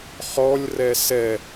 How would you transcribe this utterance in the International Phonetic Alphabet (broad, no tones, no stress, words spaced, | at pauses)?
χɔlʲ rɛsɛ